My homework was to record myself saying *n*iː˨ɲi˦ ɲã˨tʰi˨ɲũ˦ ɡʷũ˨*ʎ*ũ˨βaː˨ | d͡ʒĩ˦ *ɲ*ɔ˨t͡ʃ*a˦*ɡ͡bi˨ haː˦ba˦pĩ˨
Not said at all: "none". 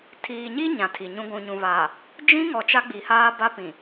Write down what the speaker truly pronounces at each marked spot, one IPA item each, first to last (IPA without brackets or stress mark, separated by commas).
tʰ, ɲ, ŋ, a˦